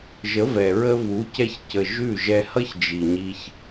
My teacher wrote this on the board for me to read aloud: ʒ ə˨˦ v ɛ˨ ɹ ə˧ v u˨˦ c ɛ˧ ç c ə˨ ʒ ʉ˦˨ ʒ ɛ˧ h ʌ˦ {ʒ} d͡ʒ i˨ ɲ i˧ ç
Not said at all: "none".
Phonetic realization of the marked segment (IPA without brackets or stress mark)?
ç